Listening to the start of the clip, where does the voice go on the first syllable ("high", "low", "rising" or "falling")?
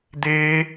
high